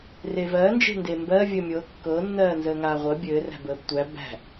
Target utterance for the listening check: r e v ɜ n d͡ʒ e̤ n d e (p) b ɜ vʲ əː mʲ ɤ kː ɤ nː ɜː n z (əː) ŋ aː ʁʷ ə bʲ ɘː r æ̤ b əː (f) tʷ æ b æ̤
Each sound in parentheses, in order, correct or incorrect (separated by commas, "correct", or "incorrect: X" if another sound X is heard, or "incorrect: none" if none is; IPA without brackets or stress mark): incorrect: m, correct, incorrect: b